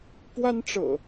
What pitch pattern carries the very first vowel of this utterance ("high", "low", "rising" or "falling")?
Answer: high